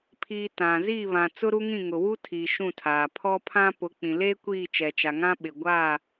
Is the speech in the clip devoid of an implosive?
no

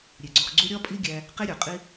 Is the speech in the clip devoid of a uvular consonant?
no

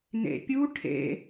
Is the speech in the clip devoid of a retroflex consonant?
no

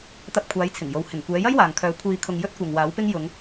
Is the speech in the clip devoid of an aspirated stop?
no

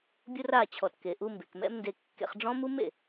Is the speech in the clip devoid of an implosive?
yes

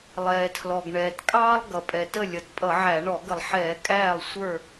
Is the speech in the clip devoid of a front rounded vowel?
yes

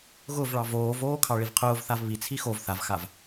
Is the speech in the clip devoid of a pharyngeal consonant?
yes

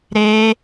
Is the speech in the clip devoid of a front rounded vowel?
yes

